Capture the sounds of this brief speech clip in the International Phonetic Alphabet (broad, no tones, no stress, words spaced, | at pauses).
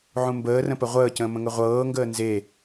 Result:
ʕũmbəːrə̃pə ʁʷəːcə̃ːmə̃ŋə ʁʷɤːŋɡəː nze